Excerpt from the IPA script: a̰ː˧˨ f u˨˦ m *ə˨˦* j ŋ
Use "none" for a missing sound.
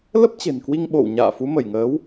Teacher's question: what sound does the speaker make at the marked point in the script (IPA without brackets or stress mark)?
ə˧˩